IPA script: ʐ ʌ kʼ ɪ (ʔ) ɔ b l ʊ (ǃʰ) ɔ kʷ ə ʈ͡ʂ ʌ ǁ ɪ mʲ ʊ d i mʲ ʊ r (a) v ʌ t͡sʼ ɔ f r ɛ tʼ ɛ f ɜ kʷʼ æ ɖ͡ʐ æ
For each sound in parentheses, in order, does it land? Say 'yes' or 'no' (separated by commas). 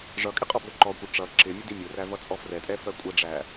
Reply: no, no, no